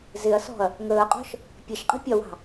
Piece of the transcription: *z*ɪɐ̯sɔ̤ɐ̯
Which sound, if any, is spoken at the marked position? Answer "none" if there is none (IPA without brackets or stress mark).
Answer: z